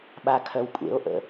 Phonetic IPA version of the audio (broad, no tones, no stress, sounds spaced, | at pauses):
ɓ a kʰ œ w kʷʼ ḛ o̯ ʔ ə̰